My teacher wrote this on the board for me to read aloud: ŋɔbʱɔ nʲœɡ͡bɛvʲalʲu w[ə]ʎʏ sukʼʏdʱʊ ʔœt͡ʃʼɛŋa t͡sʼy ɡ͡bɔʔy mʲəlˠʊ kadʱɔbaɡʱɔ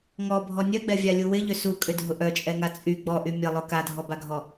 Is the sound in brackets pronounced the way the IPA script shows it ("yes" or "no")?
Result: no